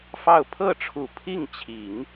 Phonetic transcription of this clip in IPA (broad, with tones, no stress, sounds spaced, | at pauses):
f ɑ˥˧ ʊ̯ pʰ ɤ˥˩ ʈ͡ʂʰ u˨˩ pʰ i˥˩ ŋ t͡ɕʰ i˨˩˦ ŋ